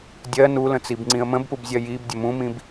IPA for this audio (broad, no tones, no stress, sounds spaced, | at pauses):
dʲ ɜ n u l ə̃ t͡s i b ŋ͡ǀ ĩ ə̯ m ə̃ b p u b zʲ ɜ j i b dʲ ə m ũ m ĩ b